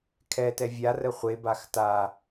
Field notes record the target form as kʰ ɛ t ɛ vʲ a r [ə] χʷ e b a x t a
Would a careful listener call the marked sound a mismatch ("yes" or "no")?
no